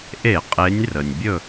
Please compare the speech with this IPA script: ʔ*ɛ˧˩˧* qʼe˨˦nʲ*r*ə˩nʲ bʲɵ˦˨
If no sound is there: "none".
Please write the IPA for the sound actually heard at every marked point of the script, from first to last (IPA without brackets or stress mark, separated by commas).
e˧˩˧, r